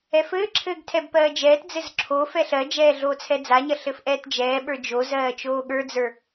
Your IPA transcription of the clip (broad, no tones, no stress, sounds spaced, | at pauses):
ɛ f ɘː ǁʰ ɘː ɡ tʰ ɛ b p ɜː d͡ʒ ɛː t d͡z ɘ z ǁʰ o f ɛ ɬ ɜ d͡ʒ ɛː ɮ oː t͡sʰ ɛ d͡z a ɲ ɐ ɬ ɘ f ʔ ɛː t d͡ʒ ɛː ɓ ə˞ d͡ʒ o z ɜː t͡ʃ oː ɠ ə˞ d͡z ə˞